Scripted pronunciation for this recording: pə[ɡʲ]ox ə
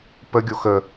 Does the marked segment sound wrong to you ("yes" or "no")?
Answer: no